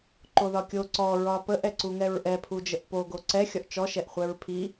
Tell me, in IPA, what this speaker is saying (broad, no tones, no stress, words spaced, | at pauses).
ǃoðɒkʲo ǀɔ ɹɒpəʔ ɛǀuŋɛɹʔɛ pʰud͡ʒəʔpo ɡoǀɛ xʲɒʔt͡ʃɔ ʃɛʔχʷɛɹpʰi